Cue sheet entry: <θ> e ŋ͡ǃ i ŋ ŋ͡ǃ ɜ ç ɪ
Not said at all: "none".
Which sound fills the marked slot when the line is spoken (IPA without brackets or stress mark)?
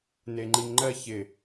n